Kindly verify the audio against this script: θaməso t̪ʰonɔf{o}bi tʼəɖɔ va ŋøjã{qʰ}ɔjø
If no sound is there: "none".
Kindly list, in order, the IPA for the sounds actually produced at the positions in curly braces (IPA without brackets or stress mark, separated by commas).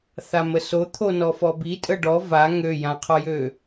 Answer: ɔ, qʰ